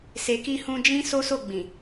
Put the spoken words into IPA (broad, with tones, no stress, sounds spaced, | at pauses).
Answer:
s e˨ k i˧ h ũ˧ d͡ʒ ĩ˦ s o˦ s o˦˨ ɡ͡b ĩ˨